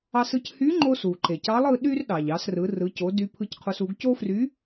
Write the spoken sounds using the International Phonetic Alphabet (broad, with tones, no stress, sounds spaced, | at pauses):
ɑ˧ s ɯ˧ c h y˧˥ ŋ͡ǃ o˧ s u˩ ǃ e˩ c ɑ˧˥ lˠ ɯ˧ ɗ y˥ r ɗ ɑ˩ ʎ ɑ˩˧ s r ɯ˩˧ r ɯ˩˧ c o˩˧ d y˧ pʰ ɯ˧ c qʰ o˧ s u˩˧ ɡ c o˥ f r y˧˥